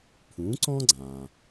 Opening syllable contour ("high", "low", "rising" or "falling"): rising